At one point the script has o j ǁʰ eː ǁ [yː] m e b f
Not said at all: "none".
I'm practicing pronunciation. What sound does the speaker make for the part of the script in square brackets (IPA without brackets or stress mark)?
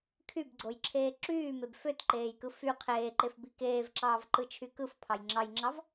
yː